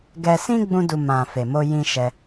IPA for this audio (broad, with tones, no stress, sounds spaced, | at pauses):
ɡ ɛ˧ s ĩ˦ ɡ͡b ũ˦ d u˧ m ã˨ f e˨ m o˧ j ĩ˧ ʃ ɛ˧